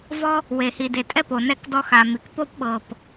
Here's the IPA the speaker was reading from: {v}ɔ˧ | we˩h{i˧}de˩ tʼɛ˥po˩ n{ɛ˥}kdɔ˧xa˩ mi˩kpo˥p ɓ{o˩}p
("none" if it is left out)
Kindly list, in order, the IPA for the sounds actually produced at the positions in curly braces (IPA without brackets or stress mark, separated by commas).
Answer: v, i˩, ɛ˧, ɤ˩